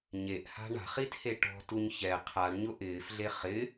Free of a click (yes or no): yes